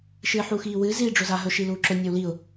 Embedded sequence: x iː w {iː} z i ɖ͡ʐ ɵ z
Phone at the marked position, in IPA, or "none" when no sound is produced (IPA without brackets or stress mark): ɨː